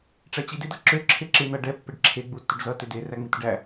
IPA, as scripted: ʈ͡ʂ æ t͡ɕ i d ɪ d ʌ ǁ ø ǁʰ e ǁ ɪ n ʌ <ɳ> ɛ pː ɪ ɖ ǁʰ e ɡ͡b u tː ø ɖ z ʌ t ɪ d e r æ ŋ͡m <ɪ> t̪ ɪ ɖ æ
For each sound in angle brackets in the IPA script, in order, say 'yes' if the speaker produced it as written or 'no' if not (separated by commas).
no, no